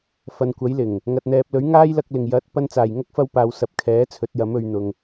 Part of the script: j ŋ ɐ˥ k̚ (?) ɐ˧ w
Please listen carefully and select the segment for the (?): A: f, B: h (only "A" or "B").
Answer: A